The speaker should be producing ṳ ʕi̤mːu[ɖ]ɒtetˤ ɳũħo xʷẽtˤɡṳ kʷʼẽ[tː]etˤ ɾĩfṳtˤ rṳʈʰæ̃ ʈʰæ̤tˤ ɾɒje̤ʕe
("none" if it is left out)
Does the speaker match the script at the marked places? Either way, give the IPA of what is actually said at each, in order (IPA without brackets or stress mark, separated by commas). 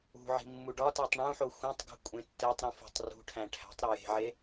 ɖ, tː